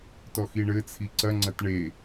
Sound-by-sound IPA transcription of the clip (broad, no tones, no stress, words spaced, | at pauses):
tɔxiɳɘt͡sʰi ǀɐŋ͡ǀɐt ɳe